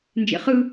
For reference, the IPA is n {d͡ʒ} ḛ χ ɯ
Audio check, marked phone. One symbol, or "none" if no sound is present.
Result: d͡ʒ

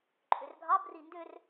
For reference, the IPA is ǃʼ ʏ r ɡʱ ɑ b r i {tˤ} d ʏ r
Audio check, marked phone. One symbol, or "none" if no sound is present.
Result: n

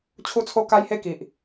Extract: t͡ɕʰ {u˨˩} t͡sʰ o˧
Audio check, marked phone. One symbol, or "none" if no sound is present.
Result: u˧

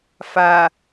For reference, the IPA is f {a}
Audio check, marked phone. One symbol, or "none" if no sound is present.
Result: a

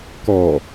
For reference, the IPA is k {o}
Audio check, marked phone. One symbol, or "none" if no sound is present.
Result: ɔ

